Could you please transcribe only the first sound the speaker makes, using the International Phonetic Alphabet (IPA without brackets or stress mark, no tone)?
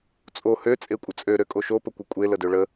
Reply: t͡sʼ